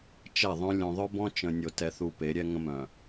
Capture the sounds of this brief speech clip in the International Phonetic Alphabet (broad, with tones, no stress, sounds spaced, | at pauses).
t͡ʃ ɛ˦˨ ðˤ œ̃˦ lʲ õ˨ ðˤ œ˦ b ɔ̃˦ t͡ʃ ə̃˨ nʲ o˨ t ɛ˨ θ u˨ p e˨˦ ɾʲ ɛ˦ ŋ ə̃˦ m œ̃˨